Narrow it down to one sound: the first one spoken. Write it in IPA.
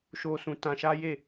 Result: ʃ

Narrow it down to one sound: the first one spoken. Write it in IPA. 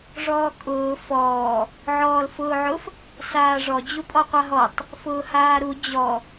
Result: ʐ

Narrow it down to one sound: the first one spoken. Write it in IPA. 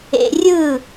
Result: ḛ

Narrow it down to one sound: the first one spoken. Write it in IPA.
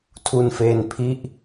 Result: tʰ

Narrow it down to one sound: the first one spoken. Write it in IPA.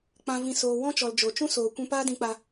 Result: k͡p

